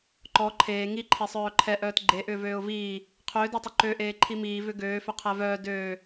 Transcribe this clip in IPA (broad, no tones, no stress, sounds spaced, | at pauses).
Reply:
ǃ ɔ ǃʰ eː ŋ i ǃʰ e sˤ œː ǃʰ ɛ ʔ œː t ɡ͡ǃ e ʔ ʏː v øː ʊ̯ v iː | qʰ ʏː d ɔ tˤ ʏ ǃ ø ʔ eː ǃʰ i m iː v ʏ ɡ øː f ʏ qʰ ɛ v œː d øː